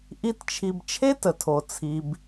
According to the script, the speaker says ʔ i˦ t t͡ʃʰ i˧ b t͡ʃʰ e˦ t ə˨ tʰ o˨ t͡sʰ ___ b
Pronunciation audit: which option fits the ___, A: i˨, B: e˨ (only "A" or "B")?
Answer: A